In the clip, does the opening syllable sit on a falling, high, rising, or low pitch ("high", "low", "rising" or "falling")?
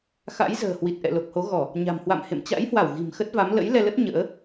rising